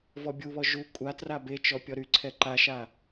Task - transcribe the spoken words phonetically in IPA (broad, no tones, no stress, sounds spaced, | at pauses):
v ɔ bʲ u β ɔ ʒ u kʷʼ a t r a b e t͡ʃ ɔ pʲ ɔ ɾ y ǀʰ ɛ ǃ a ʃ a